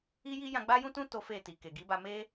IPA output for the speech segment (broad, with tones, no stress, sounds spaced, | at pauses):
i˦ j i˦ j ã˧ ɡ͡b a˦ j ũ˦ t ũ˦ t o˦ f e˦˨ t i˨ k e˨ ɡ i˨˦ b a˧ m e˦